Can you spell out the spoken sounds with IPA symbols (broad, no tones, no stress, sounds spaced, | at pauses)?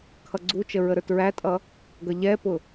kʰ ʌ ɡ͡ǀ u t͡ʃ ə ɹ ə ɾ ə˞ t ɹ æ tʼ ʌ | ɡ ʌ ʎ ɛ p ʊ